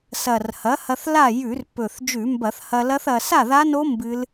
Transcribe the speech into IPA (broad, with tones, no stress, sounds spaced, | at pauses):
s ɐ˨˩ r h ɐ˩˥ h ɐ˧ θ l a˥˨ j ʉ˧˩˧ r p ɵ˨˩ θ d͡ʒ ʉ˧˩˧ m b ɐ˧˩˧ θ h ɐ˧ l ɐ˦˥ θ ɐ˧ s a˥˨ ð a˦˥ n o˦˥ m b ɨ˦˥ l